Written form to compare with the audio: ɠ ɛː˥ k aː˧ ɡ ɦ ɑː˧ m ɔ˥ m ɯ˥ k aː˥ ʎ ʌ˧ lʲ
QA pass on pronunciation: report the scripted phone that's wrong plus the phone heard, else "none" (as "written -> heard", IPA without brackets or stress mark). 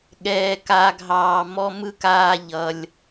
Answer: ɛː˥ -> ɛː˧